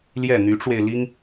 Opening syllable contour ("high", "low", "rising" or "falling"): falling